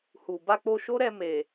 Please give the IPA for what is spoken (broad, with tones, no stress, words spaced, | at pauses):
hu˨ ba˧k͡po˧ʃo˦ɾɛ˧ me˨